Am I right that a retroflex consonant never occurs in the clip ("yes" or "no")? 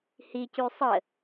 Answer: yes